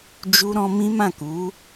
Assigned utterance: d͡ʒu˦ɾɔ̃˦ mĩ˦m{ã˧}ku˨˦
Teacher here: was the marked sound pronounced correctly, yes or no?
no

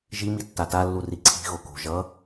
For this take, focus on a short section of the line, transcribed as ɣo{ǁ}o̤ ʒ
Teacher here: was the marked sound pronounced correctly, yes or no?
no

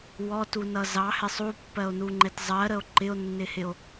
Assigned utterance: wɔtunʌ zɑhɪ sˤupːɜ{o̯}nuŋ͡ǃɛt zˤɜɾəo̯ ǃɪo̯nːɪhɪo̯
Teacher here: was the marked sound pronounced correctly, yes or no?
yes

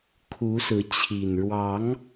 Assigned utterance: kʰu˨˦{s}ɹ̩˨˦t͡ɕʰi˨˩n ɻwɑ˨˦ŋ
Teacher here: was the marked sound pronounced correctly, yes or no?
yes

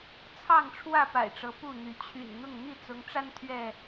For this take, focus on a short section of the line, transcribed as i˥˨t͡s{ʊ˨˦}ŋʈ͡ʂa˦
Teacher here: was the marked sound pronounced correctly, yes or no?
yes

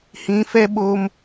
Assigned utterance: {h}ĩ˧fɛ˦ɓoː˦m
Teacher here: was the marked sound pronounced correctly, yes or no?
yes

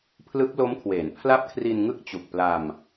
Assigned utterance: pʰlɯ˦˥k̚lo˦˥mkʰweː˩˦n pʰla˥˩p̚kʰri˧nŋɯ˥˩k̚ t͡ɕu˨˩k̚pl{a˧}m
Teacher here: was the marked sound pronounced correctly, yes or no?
yes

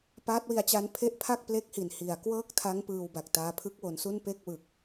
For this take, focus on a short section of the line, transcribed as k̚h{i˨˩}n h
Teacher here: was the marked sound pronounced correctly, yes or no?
yes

